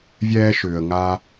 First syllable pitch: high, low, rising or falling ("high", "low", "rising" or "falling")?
high